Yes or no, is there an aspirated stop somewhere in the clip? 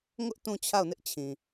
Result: yes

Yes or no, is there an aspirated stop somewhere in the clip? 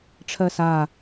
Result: yes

